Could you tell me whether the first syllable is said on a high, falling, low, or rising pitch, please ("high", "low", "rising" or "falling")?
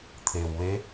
low